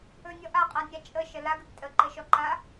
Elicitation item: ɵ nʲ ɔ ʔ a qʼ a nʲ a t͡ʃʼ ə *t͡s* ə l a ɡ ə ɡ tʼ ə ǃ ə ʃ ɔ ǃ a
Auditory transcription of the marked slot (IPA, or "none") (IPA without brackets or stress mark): ʃ